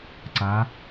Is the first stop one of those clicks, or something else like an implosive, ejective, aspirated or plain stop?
click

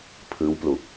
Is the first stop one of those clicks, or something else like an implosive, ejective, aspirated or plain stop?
aspirated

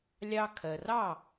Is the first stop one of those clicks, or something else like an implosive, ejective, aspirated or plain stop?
aspirated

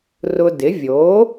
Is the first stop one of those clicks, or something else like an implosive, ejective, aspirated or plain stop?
plain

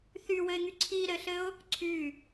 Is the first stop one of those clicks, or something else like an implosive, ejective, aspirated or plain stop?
click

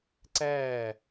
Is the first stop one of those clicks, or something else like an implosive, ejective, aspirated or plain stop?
click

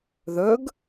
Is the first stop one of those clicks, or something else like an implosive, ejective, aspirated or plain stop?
plain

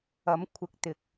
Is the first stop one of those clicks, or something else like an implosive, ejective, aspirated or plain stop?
aspirated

